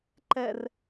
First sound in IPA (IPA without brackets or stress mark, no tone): ǃ